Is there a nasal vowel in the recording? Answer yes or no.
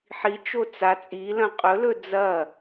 yes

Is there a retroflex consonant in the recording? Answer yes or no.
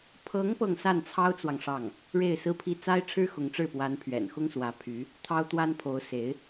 yes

